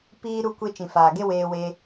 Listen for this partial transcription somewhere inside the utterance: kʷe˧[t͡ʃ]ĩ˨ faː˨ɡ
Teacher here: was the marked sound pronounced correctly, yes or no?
yes